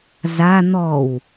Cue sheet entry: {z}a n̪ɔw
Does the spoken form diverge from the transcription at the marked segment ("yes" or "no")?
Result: no